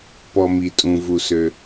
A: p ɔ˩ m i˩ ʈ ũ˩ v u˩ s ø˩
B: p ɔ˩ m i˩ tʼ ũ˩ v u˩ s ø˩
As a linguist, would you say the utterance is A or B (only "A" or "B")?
B